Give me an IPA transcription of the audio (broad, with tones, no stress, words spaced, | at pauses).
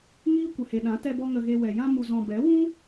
ŋiː˦kʷə˨he˨ɗã˨˦ tɛ˧bɔ˧ ŋə˧ɣe˧wɛ˨ jã˧mu˨zɔ̃˨ bɛ˨˦wũ˦